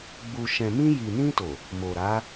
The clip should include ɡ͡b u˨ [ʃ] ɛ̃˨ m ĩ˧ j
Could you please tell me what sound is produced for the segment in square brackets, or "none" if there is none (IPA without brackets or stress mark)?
ʃ